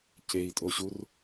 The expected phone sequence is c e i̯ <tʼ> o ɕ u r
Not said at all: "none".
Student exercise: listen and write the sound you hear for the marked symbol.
tʼ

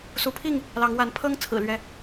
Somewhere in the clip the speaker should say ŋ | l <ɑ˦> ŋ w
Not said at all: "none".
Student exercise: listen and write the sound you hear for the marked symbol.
ɑ˨˦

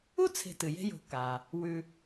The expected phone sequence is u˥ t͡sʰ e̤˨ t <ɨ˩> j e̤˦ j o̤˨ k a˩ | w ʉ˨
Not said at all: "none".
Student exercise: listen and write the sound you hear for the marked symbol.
ɨ˩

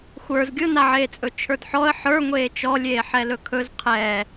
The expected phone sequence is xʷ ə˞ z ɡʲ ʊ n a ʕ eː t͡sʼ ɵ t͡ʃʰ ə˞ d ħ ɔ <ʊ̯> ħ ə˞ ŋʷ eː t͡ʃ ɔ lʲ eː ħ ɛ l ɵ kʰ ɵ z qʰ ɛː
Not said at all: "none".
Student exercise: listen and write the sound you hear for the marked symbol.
ə̯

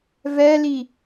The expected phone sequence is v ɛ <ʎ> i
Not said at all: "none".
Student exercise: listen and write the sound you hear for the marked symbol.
l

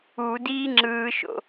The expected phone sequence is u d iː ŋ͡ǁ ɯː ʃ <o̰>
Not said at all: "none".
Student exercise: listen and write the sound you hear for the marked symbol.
o̰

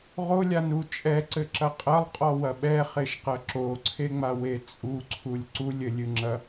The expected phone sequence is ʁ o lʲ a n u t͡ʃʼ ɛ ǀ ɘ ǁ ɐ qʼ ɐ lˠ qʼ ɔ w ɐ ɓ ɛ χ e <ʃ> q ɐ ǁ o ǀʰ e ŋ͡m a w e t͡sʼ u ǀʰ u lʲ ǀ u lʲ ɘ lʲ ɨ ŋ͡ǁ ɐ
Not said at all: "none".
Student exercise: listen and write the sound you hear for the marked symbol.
ʃ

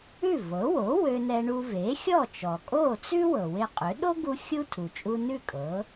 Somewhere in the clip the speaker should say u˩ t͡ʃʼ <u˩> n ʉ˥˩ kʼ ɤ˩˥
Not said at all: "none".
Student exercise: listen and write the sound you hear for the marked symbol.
u˧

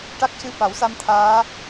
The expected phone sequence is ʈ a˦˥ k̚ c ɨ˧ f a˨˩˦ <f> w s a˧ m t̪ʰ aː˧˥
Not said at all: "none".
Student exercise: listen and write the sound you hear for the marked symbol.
none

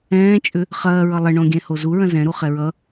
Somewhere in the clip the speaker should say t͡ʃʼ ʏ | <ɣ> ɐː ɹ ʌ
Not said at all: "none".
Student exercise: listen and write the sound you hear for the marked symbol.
χ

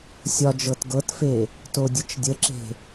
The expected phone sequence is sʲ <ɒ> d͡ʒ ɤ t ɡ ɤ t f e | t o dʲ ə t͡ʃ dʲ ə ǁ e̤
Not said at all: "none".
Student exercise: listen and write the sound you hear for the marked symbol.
ɒ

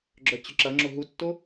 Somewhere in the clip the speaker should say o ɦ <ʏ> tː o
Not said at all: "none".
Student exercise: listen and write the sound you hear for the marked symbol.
u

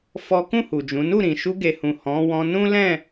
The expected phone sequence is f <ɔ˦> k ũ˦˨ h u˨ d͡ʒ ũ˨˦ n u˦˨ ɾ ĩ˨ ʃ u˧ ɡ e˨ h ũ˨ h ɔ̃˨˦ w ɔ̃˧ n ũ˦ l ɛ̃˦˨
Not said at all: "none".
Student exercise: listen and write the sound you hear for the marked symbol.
ɔ˦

